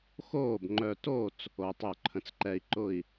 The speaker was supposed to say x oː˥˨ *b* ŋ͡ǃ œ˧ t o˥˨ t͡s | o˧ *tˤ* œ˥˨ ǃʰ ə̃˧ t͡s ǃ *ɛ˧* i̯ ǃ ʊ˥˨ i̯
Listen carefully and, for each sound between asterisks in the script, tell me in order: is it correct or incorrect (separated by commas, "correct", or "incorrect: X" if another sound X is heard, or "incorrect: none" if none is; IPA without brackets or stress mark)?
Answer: correct, correct, correct